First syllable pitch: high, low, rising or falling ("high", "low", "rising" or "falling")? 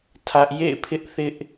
high